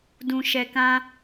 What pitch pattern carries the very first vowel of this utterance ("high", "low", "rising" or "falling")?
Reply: low